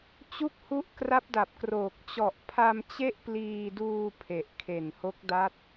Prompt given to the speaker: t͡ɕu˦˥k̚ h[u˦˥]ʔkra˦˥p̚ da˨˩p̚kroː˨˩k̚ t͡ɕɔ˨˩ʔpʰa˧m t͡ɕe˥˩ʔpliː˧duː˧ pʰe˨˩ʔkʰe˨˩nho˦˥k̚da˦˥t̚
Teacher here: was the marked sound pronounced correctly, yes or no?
yes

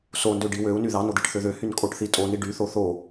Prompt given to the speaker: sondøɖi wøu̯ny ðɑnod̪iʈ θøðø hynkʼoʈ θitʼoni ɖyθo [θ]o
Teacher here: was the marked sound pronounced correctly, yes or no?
yes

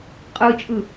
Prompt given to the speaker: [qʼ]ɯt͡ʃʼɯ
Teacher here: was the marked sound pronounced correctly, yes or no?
yes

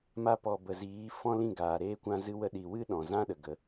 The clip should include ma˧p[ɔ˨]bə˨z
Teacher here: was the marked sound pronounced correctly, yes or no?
yes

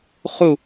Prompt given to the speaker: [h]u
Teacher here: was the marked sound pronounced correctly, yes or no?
no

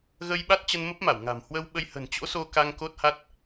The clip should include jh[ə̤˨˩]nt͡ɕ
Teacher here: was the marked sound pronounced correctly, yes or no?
yes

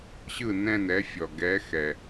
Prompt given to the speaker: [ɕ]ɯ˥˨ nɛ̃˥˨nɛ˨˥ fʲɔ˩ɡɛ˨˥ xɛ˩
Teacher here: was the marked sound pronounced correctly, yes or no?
yes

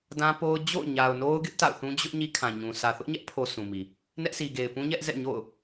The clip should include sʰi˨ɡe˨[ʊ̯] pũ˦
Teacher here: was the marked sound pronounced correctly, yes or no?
no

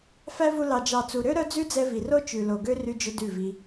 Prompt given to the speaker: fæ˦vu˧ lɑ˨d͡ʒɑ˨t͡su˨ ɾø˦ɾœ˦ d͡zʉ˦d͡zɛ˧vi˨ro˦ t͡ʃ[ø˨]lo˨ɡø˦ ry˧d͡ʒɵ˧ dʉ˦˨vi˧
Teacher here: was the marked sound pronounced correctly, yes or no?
no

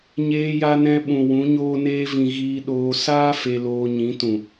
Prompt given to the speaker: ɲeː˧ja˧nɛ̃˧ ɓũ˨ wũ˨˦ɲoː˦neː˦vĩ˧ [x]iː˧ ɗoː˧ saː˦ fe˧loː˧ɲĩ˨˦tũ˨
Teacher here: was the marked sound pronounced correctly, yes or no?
no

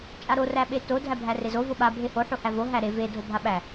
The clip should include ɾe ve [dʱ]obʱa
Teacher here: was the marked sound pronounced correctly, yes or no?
yes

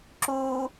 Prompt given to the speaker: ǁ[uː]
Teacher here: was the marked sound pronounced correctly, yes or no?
yes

